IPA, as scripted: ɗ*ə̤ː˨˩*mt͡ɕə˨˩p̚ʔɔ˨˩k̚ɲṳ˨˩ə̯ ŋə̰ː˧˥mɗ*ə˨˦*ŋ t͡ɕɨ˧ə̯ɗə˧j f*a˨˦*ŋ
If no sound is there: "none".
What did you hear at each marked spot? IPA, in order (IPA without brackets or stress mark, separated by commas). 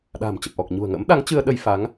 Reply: a̤ː˨˩, a˨˦, a˨˦